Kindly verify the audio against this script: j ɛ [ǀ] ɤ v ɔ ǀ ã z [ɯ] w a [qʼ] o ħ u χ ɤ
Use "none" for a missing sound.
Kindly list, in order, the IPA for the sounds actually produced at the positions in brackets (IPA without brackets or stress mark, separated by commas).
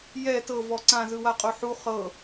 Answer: t, ɯ, qʼ